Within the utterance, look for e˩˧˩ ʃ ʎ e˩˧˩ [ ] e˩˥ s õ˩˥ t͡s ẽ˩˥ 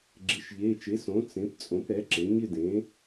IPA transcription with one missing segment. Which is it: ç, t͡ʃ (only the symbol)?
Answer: t͡ʃ